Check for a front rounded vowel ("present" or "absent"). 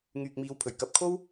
present